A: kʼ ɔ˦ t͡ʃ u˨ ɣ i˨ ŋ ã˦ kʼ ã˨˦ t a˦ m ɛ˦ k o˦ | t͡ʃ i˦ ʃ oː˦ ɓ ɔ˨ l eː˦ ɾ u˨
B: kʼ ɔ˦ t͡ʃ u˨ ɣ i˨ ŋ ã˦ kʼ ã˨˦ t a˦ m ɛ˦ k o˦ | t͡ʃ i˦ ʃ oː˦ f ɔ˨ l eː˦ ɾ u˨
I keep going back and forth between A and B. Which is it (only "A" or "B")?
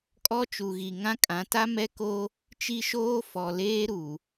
B